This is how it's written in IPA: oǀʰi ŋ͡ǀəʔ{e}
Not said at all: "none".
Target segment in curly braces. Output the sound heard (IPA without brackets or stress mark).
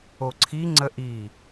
i